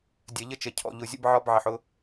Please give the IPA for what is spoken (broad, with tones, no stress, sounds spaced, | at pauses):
dʲ ɜ˨ ʎ ə˦ t͡ʃ ə˨ cʰ ɔ̰˨ ʎ ʊ˨ zʲ ə̰˦ b ʕ ɒ˦ b ʕ ɪ˨ ħ ʊ˦